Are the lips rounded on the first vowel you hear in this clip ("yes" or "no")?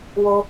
yes